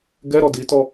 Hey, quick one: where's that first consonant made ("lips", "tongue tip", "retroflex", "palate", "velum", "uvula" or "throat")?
velum